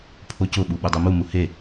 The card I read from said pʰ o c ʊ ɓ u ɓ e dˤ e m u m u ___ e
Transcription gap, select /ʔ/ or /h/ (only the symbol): h